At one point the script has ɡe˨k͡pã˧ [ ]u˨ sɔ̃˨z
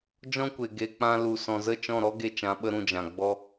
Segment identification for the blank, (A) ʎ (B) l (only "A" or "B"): B